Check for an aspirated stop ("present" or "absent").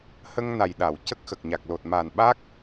absent